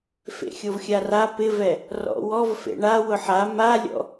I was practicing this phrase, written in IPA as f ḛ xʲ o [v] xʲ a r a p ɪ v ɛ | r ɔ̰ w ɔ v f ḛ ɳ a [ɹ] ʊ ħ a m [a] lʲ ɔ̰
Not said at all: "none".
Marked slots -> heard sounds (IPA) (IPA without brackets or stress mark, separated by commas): v, w, a